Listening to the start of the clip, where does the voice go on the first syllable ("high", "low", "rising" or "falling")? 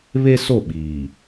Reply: high